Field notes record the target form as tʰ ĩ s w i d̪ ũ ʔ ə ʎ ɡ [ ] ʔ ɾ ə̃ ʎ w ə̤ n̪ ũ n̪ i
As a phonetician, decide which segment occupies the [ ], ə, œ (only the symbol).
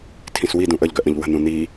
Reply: œ